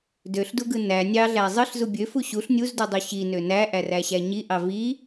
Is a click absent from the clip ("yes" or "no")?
yes